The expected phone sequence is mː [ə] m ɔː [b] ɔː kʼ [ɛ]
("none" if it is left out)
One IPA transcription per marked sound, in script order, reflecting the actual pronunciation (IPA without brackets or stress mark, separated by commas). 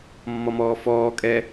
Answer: ɔ, f, ɛ